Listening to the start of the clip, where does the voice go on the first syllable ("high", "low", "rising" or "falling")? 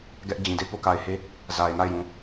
high